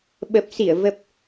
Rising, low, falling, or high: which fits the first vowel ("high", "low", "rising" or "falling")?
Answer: low